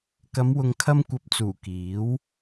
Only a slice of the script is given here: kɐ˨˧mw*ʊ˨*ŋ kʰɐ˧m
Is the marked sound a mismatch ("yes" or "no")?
no